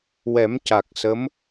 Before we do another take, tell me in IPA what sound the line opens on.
w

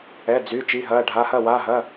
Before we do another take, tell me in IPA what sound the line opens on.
ɛ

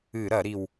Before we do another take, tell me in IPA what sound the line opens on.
ɨ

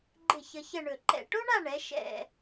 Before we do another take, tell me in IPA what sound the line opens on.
ɡ͡ǃ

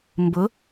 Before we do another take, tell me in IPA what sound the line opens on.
m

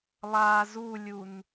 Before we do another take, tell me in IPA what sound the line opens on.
lˠ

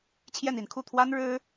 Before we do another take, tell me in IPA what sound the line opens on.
t͡ɕʰ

